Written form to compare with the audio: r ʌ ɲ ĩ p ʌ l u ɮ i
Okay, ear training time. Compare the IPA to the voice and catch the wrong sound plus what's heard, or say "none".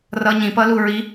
ɮ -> ɹ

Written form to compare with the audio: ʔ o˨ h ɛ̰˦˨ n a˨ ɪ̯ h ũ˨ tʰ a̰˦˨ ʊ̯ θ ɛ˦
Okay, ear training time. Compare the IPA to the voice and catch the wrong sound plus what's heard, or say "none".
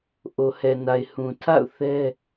ɛ̰˦˨ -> ɛ˨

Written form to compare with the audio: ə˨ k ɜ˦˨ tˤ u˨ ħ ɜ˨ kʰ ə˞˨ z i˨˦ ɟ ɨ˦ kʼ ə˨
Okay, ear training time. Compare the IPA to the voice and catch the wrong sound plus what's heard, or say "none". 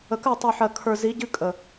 none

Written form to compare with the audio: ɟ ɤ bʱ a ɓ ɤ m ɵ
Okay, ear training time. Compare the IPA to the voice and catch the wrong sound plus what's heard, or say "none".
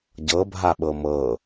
ɵ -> ɤ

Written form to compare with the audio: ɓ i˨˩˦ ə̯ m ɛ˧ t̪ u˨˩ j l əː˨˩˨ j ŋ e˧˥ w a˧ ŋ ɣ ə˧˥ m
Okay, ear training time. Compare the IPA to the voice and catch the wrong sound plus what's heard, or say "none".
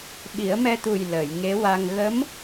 none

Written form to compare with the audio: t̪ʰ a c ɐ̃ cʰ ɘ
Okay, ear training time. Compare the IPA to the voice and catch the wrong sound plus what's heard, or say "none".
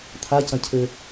none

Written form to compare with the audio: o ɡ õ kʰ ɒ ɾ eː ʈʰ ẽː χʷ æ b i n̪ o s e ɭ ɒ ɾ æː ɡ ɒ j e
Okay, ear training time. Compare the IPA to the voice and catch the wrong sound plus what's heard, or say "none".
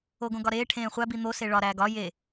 kʰ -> ɡ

